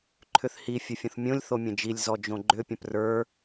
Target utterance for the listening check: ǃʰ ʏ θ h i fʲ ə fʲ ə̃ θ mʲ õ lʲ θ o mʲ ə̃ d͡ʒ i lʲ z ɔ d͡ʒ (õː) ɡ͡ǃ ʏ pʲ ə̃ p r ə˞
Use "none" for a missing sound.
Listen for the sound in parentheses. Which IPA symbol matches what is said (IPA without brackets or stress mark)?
õ